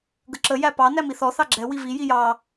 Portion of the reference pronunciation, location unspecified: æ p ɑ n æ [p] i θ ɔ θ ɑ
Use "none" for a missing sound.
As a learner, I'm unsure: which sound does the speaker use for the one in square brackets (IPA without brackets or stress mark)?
m